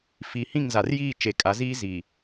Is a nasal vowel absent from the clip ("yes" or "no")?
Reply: no